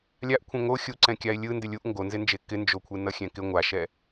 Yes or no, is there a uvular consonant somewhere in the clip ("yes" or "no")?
no